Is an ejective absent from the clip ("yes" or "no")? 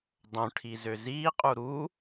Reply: no